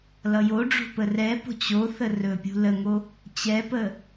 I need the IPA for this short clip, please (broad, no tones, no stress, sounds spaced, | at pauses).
l ʌ j o ɖ͡ʐ o̤ p ə r ɛ p o̤ t͡ɕ o θ ə r ɵ pʲ ṳ l ə ŋ o | t͡ɕ ɛ p ə